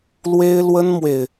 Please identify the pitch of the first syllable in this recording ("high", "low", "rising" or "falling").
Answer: high